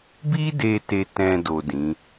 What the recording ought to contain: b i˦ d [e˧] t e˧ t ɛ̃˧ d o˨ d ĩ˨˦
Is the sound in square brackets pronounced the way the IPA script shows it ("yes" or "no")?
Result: yes